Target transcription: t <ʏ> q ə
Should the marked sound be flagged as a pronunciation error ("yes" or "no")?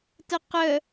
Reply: yes